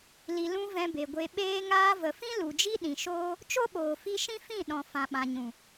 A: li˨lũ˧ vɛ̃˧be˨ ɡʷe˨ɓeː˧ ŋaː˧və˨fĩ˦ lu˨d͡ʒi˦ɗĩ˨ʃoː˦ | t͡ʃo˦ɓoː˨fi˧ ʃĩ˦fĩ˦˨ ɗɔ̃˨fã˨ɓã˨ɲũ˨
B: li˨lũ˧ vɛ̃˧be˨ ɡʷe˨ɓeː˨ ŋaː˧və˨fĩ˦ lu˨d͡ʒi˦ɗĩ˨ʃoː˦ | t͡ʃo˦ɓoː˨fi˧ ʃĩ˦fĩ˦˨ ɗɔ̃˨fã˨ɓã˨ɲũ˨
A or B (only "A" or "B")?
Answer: A